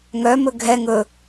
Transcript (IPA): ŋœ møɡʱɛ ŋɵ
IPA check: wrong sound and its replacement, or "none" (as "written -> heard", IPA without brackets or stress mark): ø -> ɵ